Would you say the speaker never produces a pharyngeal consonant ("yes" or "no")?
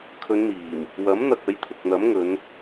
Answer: yes